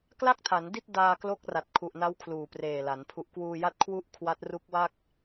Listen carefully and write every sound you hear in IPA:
kla˥˩k̚tʰa˩˦n di˥˩t̚daː˧klo˦˥k̚ra˨˩t̚ kʰu˨˩ʔna˦˥w kʰluː˨˩preː˨˩la˩˦n pʰu˨˩ʔkwuː˧ja˦˥t̚kʰwu˦˥ʔ kʰwa˦˥t̚ru˦˥k̚wa˥˩k̚

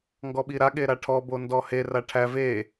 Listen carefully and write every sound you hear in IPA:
ŋɡɔɓiɾaɠe ɾaʈʰɔbo ndɔhera ʈʰæ ve

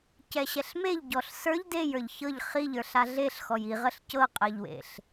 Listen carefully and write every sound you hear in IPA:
cɛɕɛɬmeʎ ɟɔɬsə˞ʎ dejə˞ʎ çɤʎ χiʎə˞ɬ aɮeɬxɔj iʁəɬ cɤqʼəʎwḛɬ

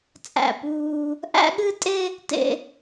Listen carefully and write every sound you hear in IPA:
t͡sʼæ̰˦˨puː˦ | ʔæ̰˦ɠɨ˦tʼe˦ | tḛ˦

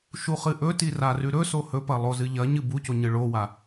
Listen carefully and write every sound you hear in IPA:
ʃuχɨʔɵti rarʉɾɵso hɵpɐ lˠozɨʎɐɲɨ buco ɲɨɭowa

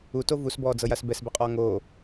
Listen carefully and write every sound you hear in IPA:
uto vusbɔːd͡zɤjas bɛsbɛqʼɔː ŋoː

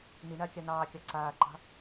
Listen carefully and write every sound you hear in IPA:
niɳakʲa nɑːkʲɑ ǀaːǃɑ̤

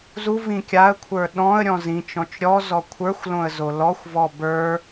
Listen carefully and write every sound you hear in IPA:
zuv ĩkʲaə̯kʷʰə˞ ɗɔ̃ə̯ ɾʲɔ̃zĩt͡ʃɔ̃t͡ʃ ɾʲɔ zɔkʷʰə˞xʷlõə̯ zolɔxʷvɔ bə˞

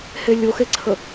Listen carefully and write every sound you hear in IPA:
helʲoxeǀʰə

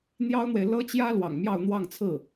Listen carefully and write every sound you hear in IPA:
n̪jɑ˥ʊ̯n̪we˨ɪ̯ lɤ˥t͡ɕjä˥ lwɑ̰˨˩ŋmjɑ˥˧ʊ̯n̪wɑ˥˧ŋt͡sʰɹ̩˥˩

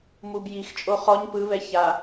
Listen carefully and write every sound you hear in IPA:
mub jixt͡ʃʼo χɔɲ pɯβɛ ça

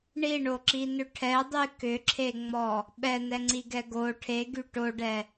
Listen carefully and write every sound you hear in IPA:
ɳiɳoǁinʏ ʈʰɛdˤy kʏǁʰeŋ͡mɔ | ɓɛnɛŋ͡ǀiɡɛ ɡo ʈʰeɡy ʈoɖɛ

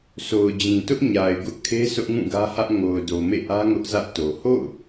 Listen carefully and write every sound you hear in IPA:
so˨ʊ̯d͡ʑĩ˨tʊ˦ʔ ɲa˨ɪ̯ɡʊ˦ʔkʰe˦ sʊ˦ʔŋũ˦˨ɡä˦hä˦ʔ ŋo˨ʊ̯ do˨mḛ˦˨ʔä˦ ŋʊ˦ʔzä˦ʔto˨ ho̰˦˨ʊ̯

